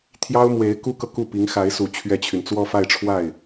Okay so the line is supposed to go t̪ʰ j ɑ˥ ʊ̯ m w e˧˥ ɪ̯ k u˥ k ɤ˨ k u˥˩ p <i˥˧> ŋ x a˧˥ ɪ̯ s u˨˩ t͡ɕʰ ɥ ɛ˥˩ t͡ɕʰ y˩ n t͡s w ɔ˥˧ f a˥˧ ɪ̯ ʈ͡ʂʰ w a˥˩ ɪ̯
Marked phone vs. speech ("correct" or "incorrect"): incorrect